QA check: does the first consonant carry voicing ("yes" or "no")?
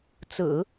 no